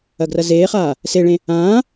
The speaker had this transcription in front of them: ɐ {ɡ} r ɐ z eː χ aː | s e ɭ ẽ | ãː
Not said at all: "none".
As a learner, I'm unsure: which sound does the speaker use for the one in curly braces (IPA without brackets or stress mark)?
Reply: ɡ